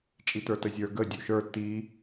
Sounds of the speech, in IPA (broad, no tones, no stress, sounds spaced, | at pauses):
t͡ʃʼ i t ə˞ t ə zʲ ə˞ ɡ ə dʲ u ʃ ə˞ t i